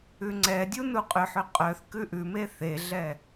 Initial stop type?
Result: click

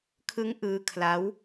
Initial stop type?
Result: aspirated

